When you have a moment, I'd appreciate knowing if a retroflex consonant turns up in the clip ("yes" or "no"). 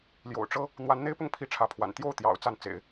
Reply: yes